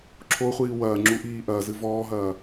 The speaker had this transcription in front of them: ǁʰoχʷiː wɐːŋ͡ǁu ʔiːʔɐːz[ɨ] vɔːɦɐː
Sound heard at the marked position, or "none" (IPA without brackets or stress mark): ɨ